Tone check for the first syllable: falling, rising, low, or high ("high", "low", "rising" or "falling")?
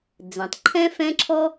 low